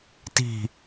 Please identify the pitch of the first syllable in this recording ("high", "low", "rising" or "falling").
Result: low